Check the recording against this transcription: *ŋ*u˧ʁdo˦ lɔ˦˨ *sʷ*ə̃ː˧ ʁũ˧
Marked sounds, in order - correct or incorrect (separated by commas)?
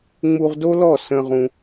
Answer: incorrect, incorrect